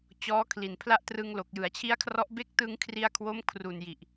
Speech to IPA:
t͡ɕ ɔː˦˥ kʰ l i˨˩ n pʰ l a˦˥ ʔ t r ɯ˧ ŋ l o˨˩ k̚ j ɯ˩˦ a̯ t͡ɕʰ i˦˥ a̯ kʰ r ɔ˦˥ ʔ b e˦˥ k̚ t ɯ˧ ŋ kʰ r i˧ a̯ kʰ w o˦˥ m kʰ r u˨˩ n j i˨˩ ʔ

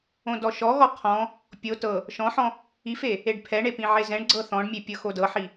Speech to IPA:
õ d ɔ ʃ ɔ ɣ ɔ qʰ ɔ̃ | pʲ o t ɤ | ʃ ɔ̃ ħ ɔ̃ | i f e | e ɖ pʰ ɛ ɳ e p ĩ ʕ e z ɛ̃ ɳ ɡ͡ǀ ɤ θ ɔ̃ ɖ mʲ e pʲ ɤ x o d ɤ ħ i

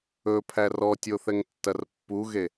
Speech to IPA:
ɵ pʰ æ r ɔ tʲ o θ ɛ ŋ tː ɐ r pː u ɣ e

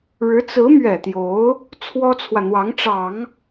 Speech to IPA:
ɻ ɻ̩˧˥ t͡s ɹ̩˧˥ m ɥ ɛ˨˩ t̪ j o˧˥ ʊ̯ | t͡sʰ w ɔ˥ t͡sʰ w ä˨ n̪ w ɑ˧˥ ŋ ʈ͡ʂ ɑ˨˩˦ ŋ

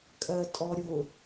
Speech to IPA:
kʼ ɜ tʼ ɔ ɾʲ ʊ

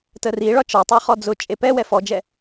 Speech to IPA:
t ə r i ɭ ɒ t͡ʃ ɒ tˤ ɑ χ ɔ d͡z ʊ t͡ʃʼ e p ɛ w ɛ f ɔ d͡ʒ ɛ

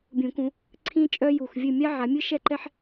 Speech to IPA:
bʲ ũ˨˩˦ k ũ˨˦ | ǀʰ ĩ˥ t͡ʃʼ œ˥ j u˨˩ x vʲ ɨ˥˨ mʲ a˥ ʕ a˨˦ mʲ ɨ˥ ʃ ɛ˥ ǃ ɛ˥ ħ

